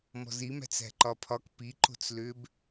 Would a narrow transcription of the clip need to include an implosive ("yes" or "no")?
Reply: no